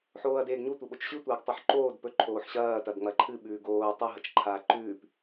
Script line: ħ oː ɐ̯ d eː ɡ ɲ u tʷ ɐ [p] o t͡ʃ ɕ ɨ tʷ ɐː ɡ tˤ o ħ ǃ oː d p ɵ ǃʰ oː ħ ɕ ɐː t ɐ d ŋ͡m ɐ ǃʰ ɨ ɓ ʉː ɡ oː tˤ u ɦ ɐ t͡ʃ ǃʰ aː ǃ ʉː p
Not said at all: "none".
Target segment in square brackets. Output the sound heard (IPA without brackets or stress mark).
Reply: ɓ